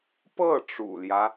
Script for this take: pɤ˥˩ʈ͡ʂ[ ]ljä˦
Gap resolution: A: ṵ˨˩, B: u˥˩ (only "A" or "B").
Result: A